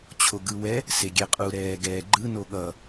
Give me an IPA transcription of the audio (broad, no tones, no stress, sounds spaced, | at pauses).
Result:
t͡ɕʰ o ɡ ɯ w ɛ | s e ɡʲ ɛ qʼ u ɾ ɛː ɡ ɛː ɡ͡ǃ ɯ n o ɠ ʌ